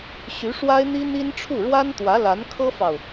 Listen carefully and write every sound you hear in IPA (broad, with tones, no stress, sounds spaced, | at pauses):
ɕ y˧˥ ʂ w a˥ ɪ̯ n̪ i˥ n̪ i˥ n ʈ͡ʂʰ u˥˩ ɻ w a˥ n t̪ w ä˧˥ l a˧˥ n kʰ ɤ˥ f ɑ˨ ʊ̯